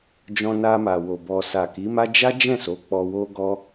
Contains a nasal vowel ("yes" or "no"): yes